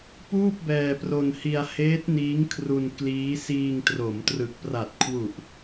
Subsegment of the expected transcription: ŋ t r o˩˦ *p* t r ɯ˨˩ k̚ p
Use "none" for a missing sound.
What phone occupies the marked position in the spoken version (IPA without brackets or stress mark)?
m